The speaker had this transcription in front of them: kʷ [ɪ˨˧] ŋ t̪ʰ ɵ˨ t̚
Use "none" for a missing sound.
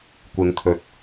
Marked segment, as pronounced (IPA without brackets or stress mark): ɪ˨˧